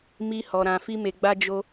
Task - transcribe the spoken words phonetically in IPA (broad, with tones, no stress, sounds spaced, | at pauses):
m i˧ h ɔ˨ ɾ ã˨ f i˧ m e˨ ɡ͡b a˧ d͡ʒ o˦